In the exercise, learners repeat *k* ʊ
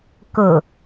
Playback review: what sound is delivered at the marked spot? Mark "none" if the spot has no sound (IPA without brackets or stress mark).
k